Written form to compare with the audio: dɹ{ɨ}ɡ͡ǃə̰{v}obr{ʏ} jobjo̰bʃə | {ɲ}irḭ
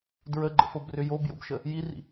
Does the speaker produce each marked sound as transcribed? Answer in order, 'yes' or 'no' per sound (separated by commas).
no, no, yes, no